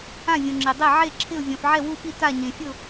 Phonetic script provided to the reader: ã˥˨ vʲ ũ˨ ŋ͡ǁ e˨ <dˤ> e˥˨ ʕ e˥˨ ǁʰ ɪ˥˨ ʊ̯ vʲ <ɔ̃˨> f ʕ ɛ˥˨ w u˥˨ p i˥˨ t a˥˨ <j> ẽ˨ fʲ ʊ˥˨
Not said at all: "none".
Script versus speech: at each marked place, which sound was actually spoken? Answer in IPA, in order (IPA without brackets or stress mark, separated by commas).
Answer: dˤ, ɔ̃˨, ɲ